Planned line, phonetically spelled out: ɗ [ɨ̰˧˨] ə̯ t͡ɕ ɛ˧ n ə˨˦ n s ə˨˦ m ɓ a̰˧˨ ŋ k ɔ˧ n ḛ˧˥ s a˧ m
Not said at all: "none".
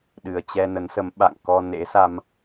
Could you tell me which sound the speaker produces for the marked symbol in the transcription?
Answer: ɨ˨˩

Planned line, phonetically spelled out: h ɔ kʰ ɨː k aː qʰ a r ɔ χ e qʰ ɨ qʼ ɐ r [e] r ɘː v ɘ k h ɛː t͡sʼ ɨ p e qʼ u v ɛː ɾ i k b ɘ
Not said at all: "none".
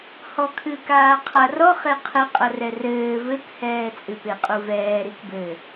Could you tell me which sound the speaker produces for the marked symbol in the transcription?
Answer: ɛ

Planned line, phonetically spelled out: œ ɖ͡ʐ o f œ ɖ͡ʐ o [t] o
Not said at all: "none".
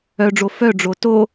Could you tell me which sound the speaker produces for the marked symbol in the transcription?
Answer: t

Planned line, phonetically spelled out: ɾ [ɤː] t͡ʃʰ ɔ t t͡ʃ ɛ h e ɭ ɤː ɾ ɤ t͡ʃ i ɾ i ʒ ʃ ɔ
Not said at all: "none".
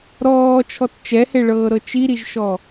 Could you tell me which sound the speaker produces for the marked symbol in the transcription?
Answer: ɔː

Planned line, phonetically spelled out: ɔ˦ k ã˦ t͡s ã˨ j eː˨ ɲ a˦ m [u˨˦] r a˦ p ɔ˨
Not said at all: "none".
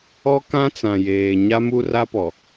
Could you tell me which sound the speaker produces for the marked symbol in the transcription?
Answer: u˦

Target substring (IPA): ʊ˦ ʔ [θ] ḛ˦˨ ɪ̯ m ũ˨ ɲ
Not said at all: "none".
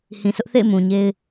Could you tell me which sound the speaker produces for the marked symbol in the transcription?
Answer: θ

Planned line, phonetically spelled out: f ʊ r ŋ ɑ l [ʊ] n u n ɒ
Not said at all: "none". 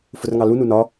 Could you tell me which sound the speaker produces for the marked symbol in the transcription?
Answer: u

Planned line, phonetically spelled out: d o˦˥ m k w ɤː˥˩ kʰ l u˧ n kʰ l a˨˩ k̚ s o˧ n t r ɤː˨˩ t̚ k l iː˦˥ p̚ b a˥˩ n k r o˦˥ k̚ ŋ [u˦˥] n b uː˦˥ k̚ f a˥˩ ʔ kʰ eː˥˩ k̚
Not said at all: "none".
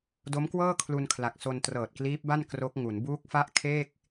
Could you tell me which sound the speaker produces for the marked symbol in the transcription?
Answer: u˩˦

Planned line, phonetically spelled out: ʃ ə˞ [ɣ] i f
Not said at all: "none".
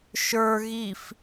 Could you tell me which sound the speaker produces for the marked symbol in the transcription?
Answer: ɣ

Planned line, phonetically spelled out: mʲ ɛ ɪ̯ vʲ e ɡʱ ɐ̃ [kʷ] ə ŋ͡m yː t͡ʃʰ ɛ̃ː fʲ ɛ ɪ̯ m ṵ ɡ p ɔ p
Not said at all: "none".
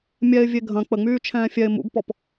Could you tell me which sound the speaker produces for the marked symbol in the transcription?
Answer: k͡p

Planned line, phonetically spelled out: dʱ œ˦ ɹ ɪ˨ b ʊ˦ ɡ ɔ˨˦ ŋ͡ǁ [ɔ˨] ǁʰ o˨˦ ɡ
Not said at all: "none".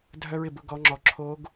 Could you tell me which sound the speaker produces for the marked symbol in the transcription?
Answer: ɔ˨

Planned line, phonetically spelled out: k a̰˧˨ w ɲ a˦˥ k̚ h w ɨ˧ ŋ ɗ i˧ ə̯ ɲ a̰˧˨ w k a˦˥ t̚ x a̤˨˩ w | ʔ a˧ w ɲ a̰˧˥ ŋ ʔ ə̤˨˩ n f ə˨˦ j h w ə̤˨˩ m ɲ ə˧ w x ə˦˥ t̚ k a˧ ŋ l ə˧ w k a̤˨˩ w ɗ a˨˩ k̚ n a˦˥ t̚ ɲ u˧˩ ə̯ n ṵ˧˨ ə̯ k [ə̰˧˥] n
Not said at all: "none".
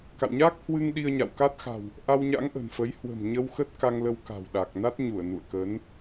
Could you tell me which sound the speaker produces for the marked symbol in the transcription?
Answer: ə˨˦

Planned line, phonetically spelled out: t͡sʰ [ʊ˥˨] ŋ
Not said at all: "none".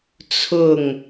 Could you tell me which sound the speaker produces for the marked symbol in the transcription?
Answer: ʊ˥˨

